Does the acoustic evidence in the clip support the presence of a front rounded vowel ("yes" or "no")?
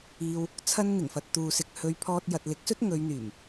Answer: yes